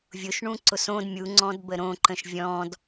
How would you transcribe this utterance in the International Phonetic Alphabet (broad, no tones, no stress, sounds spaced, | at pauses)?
vʲ ʊ ʃ ɳ ũ ǀ ʊ s õ d mʲ u ŋ͡ǀ ɔ̃ d b ə ɾ õ ǃ ə̃ ʃ vʲ ɔ̃ d